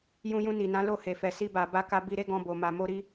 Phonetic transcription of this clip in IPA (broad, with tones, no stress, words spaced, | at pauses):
jũ˧jũ˧ ni˨nã˨˦ lo˦˨he˨fɛ˨ si˧ba˨ ba˧ka˧ bi˧ɾe˦ɡɔ̃˧ bo˨ ma˨mo˧ɾi˦